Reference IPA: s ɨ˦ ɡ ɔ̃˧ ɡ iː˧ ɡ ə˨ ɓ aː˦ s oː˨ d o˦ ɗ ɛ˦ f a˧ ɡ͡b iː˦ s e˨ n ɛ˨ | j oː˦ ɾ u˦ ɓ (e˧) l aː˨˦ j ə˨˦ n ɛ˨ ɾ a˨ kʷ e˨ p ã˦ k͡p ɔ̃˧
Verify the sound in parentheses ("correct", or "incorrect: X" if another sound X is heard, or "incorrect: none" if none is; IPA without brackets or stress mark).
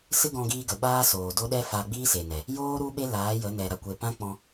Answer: incorrect: e˦